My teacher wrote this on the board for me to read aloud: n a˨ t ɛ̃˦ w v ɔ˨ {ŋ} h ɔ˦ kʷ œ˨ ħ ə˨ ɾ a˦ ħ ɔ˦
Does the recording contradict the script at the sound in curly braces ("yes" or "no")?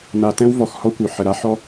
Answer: yes